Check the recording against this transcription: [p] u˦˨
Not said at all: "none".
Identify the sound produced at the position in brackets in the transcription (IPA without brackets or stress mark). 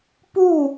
p